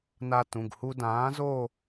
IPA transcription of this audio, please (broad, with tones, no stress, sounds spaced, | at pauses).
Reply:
n a˧ t ũ˩˧˩ ɡ h u˧ d ãː˨˥ z o˥˧